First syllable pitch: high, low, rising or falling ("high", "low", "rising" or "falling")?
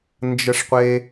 high